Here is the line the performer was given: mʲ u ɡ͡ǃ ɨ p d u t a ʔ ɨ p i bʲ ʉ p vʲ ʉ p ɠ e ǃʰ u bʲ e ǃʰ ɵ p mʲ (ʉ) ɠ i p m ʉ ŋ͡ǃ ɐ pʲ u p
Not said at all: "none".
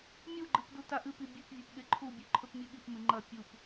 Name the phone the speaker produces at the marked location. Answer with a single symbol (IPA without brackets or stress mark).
ʉ